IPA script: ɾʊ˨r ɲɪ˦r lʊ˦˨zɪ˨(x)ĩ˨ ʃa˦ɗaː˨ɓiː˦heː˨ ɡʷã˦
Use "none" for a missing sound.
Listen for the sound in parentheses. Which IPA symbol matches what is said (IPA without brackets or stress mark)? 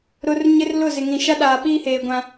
ŋ